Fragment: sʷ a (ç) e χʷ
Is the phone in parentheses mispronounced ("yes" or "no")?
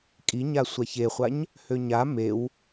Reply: no